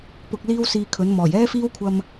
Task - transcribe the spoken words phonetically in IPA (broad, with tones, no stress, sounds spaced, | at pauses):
p ʊ˨ k̚ l iː˥ w s iː˧ kʰ ɵ˨˥ n m ɔː˨˩ j ɛː˥ f iː˥ w kʷʰ ɐ˧ m